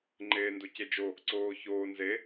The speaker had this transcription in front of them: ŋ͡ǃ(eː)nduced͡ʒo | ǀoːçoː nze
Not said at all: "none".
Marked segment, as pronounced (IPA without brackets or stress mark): eː